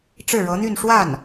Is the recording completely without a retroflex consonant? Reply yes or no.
no